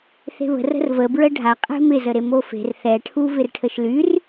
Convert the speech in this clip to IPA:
θ e̤ β ə̤ r ə̤ r v ə b ɹ ə ɖʱ a qʼ e̤ m ɪ z ə ɾ e m o f e̤ r θ ɛ ʈʰ u v ɪ r ʈʰ ə ʃ l y r

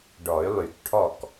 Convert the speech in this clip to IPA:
ɖ ɔ˨˩˦ y̯ lˠ y˨˩˦ k ʈʰ ɔ˥˩ k

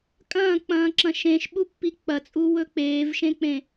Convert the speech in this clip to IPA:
kʼ ɐ̃ː k͡p ɐ̃ː ǁ ɐ̃ ʃ ẽ ʃ ɓ u pː i k͡p ɐ t͡sʼ u w ɵ k͡p eː v ʃ ẽ k͡p ẽ

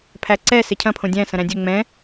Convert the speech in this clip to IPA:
pʰ æ ǀ ɛ s ɪ cʰ ɐ̃ pʰ õ dʲ æ̃ s ɐ̃ ɾ æ̃ dʲ ɵ ŋ͡m ɛ̃

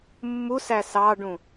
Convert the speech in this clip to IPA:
mː u s æ s ɑ ɖ ũ

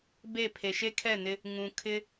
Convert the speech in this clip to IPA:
b e˦˨ pʰ e˨ ʃ e˦ kʰ ɛ˦˨ n ɪ˦ | ŋ ũ˨ kʰ ɪ˦

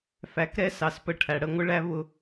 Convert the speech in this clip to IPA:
f æ˩˧ k ɾ ɛ˧˥ s ɑ˩˧ s p ə˧ ʈʰ æ˩ ɽ ə˧ ŋʷ ɪ˥ ɭ æ˥ β ʊ˧

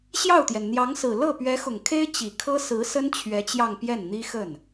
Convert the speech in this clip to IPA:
ɕ j ɑ˥˩ ʊ̯ t̪ j ɛ˩ n n̪ j ɑ˧˥ ŋ s ɹ̩˨˩ l ɤ˥˩ p ɥ ɛ˧˥ x ʊ˨˩ ŋ kʰ e˥ ɪ̯ t͡ɕ i˨˩ kʰ ɤ˥ s ɹ̩˧˥ s ə˥ n t͡ɕʰ ɥ ɛ˧˥ t͡ɕ j ɑ˥˧ ŋ p j ɛ˥˩ n n̪ i˥ x ə˥˩ n

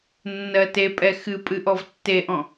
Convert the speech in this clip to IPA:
nː ɜ t e pʼ ɛ x ɨ pʼ ɨ ʔ ɔ v tː e ʔ ɔ̃

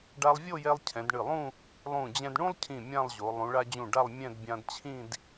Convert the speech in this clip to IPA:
ɖ a˧ lˠ vʲ o˥˧ j ɛ˧ lˠ cʰ ɛ̃˩˧ d ɳ ɨ˧˩ lˠ ũ˥˧ | lˠ ũ˧˩ d͡ʑ ɛ̃˧ d ɳ ũ˥ lˠ cʰ ĩ˧˩ mʲ ã˥˧ lˠ ʑ o˩˧ lˠ ũ˩˧ ɭ a˧ d͡ʑ ũ˧˩ ɖ a˥˧ lˠ mʲ ɛ̃˥˧ d bʲ ã˧ d t͡ɕʰ ĩ˥˧ d

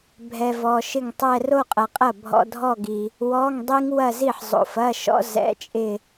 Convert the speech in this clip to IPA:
bʱ ɛ˨ v ɔ˨ ʃ ɪ˥˩ ŋ tˤ ɛ˥˧ r o˥˧ qʼ ɐ˨ qʼ ɐ˥˩ bʱ ɔ̰˧˥˧ dʱ ɔ˥˧ ɡ i˨ | w ɔ˧˥˧ ŋ dˤ i˦˥ ŋ w ɐ˥˧ z i˥˩ ħ zˤ o̰˨ f ɐ˧˥˧ ʃ ɔ̰˦˥ z ɛ̰˧˥˧ t͡ʃʼ ɪ˥˧

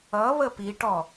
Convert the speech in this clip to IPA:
ʌ β ə p i ʈ ɔ

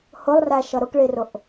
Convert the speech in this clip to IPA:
h ʊ lˠ r æ ʃ ʌ ɾ ʊ k ɭ i r ʊ ʔ

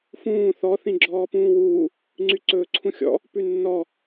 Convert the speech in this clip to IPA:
f ũː θ ɔ θ ĩ ɡ͡ǁ ɔː p ũː w uː | ŋ͡ǀ y ǀ ɵː ǀʰ ũ xʲ ɔ̰ | p ʉ nː ɔ

